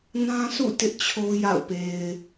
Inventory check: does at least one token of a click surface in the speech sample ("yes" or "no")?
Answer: no